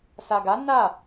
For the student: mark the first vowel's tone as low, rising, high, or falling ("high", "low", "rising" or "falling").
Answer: low